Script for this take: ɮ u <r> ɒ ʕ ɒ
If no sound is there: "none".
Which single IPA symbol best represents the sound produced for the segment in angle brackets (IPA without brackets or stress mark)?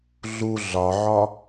ɮ